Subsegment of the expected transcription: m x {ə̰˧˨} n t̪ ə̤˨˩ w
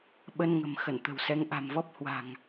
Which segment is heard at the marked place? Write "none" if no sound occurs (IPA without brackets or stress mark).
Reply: ə˧˩